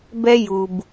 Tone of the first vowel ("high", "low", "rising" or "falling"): high